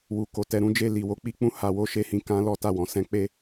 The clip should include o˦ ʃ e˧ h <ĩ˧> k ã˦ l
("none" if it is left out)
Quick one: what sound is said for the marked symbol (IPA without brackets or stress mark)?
ĩ˧